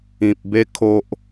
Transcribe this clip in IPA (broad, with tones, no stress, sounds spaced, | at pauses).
ĩ˦ p̚ b e˦ kʰ o˦ ʔ